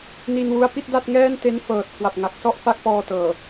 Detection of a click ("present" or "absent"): absent